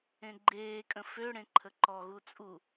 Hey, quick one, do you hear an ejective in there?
yes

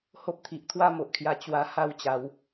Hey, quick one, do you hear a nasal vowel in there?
no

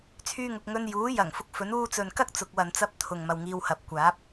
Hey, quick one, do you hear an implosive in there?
no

